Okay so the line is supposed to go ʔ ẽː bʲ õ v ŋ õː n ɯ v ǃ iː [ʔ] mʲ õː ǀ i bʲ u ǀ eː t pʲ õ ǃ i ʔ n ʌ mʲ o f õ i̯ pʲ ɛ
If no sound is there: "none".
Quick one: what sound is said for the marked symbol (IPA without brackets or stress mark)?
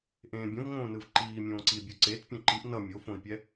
none